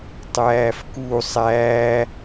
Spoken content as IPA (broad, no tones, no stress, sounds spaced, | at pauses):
tˤ æː f k u sˤ æː